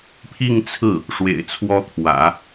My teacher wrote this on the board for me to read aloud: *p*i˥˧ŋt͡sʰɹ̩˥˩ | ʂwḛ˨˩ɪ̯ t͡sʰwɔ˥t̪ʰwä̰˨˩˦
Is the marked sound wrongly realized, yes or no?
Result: yes